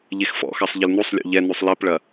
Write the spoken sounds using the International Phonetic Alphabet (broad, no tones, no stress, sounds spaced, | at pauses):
ʎ e x f ɔ̰ x a sˤ ʎ ɪ l n u sˤ lʲ ɔ̰ ʎ ɛ n u sˤ l i p ɭ ɐ